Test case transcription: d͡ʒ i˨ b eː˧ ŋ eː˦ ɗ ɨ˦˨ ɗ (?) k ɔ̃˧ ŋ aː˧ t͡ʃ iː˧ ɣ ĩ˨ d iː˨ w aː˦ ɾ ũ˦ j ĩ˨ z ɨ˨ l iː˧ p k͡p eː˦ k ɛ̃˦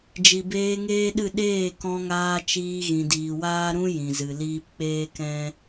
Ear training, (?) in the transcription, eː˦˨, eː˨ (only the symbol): eː˦˨